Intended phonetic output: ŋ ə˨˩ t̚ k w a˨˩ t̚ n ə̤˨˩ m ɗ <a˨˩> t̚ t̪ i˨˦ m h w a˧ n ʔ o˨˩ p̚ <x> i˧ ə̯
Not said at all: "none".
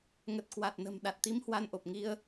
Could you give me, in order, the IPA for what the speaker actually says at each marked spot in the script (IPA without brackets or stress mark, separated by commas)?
a˨˩, ŋ